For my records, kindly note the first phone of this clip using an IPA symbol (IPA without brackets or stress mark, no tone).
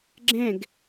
ɡ͡ǁ